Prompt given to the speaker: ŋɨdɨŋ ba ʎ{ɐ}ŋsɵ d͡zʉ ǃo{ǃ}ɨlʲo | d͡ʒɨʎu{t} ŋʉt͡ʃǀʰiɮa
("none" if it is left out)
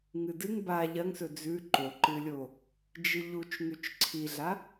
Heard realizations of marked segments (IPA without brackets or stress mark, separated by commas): ɐ, ǃ, t͡ʃ